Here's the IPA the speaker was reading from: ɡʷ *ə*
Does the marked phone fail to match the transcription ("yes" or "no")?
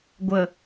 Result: no